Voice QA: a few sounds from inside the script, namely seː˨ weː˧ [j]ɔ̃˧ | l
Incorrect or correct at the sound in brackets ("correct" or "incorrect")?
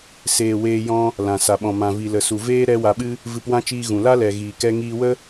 correct